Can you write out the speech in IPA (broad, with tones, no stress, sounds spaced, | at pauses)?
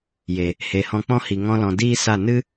j e˨ | h e˨ h ɔ̃˧ k͡p ɔ̃˦ h i˨ ŋ ɔ̃˦ l ɔ̃˧ d iː˦ s a˦˨ n ɨ˦